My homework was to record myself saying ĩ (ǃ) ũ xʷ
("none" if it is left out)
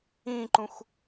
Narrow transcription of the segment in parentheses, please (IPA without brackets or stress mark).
ǃ